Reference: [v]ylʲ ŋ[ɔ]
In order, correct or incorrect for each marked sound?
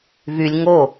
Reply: correct, incorrect: o

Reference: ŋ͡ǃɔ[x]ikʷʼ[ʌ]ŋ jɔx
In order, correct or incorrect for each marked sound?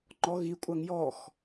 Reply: incorrect: ɣ, incorrect: a

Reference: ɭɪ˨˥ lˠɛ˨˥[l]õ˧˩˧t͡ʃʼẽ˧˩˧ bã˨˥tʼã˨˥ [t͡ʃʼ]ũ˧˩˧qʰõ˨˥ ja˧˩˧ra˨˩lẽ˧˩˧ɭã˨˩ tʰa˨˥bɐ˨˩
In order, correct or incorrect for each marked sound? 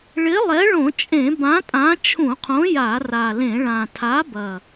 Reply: incorrect: ɭ, incorrect: t͡ʃʰ

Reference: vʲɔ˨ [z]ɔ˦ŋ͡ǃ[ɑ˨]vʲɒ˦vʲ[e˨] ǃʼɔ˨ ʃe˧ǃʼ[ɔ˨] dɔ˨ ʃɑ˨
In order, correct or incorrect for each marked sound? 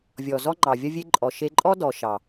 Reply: correct, correct, incorrect: e˦, incorrect: ɔ˦

